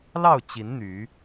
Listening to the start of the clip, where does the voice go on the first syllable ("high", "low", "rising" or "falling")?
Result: falling